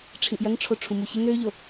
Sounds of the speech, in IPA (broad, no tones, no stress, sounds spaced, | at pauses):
ʈ͡ʂʰ ĩ ʔ j ɐ ŋ ʈ͡ʂʰ o ʈ͡ʂʰ ũ m u ç ɪ ŋ ɾ ø ʎ o